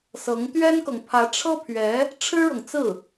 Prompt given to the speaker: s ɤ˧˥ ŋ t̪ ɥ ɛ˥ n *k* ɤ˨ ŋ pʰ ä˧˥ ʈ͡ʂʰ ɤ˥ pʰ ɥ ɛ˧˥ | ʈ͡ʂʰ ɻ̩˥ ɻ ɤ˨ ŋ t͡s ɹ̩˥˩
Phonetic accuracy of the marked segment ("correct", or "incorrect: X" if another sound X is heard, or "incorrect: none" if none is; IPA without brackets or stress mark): correct